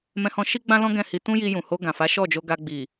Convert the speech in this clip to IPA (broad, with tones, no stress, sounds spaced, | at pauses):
m ɛ̃˧ h ɔ̃˧ ʃ i˦ ɡ͡b ã˦ l ɔ̃˦ ɡ ɛ̃˦˨ h i˧ t ũ˦ j i˧ j ũ˨ h o˧ ɡ ã˨ f a˨˦ ʃ ɔ˦˨ d͡ʒ o˧ ɡ a˧ ɡ͡b i˨